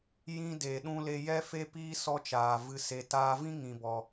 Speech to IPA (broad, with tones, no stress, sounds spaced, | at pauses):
j ĩ˧ d e˨ ɗ ũ˧ l e˧ j ɛ˧ f e˧ p iː˧ s ɔ˧ t͡ʃ aː˨ v ɨ˧ s e˧ t aː˧ v ĩ˦ ŋ ĩ˧ b ɔ˧